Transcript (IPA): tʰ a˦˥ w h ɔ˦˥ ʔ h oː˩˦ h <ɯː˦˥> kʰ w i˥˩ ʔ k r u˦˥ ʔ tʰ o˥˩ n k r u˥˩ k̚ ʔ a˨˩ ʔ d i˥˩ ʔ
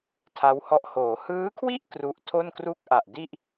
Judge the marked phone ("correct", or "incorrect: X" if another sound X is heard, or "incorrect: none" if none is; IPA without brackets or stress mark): correct